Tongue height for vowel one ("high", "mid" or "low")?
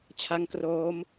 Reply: low